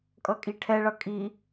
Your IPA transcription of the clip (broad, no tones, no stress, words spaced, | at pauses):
kʼʌkʼiʈʰɛɭʌ kʼi